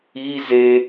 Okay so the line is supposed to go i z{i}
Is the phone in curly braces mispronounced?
yes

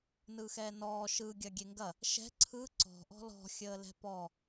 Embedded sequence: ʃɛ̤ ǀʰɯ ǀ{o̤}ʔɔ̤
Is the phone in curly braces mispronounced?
yes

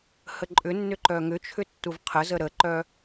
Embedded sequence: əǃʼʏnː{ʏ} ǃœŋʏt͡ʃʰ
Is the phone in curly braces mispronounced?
no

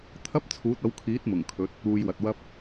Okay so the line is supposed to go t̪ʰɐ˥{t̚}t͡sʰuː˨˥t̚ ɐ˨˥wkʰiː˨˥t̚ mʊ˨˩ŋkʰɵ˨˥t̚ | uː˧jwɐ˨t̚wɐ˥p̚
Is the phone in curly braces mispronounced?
yes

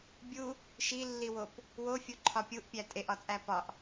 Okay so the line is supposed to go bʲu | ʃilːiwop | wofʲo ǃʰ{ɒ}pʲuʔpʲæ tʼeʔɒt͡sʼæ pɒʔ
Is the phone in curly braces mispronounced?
no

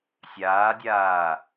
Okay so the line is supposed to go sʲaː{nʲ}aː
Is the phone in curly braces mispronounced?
yes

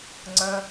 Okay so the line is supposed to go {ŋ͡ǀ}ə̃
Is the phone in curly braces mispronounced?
no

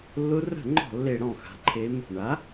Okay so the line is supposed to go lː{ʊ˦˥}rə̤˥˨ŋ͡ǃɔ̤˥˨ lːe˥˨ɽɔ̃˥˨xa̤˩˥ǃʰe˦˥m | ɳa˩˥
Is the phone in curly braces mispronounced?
no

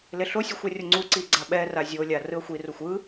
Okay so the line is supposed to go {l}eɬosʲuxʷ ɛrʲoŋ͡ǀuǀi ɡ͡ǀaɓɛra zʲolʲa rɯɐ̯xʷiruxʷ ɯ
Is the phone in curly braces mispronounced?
no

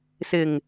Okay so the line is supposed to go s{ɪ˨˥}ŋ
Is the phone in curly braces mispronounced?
yes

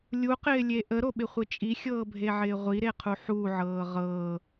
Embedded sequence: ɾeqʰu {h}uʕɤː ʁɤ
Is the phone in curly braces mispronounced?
yes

